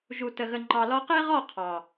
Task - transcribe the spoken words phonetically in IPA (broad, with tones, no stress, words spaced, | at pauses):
ʒu˨tə˨ɣə˨ ŋ͡ǃɑ˨lɔ˧qe˦ʁɔ˦˨ qʰɑ˨